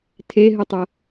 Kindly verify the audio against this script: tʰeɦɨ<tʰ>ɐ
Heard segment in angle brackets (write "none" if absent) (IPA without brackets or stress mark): tˤ